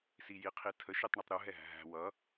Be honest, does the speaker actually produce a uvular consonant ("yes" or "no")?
yes